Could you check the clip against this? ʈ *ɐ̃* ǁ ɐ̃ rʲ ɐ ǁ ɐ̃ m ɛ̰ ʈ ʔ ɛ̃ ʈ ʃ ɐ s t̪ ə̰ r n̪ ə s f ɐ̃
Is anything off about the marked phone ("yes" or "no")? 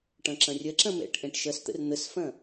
no